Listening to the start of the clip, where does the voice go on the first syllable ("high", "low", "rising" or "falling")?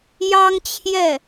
high